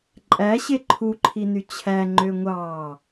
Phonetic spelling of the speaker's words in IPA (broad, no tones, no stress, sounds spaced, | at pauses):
ǃʼ æ ɕ e ǃʰ u ǃʰ i n y t͡ɕʰ æ ŋ͡ǃ ø ŋʷ ɑː